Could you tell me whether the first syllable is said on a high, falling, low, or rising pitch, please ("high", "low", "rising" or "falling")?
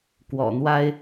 low